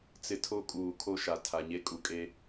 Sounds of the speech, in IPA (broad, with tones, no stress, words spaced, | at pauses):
t͡sɪ˨ tʰo˦kʼuː˨ kʰo˦ʃa˨ tʰa˨ɲe˦ kʼu˨ kʼe˦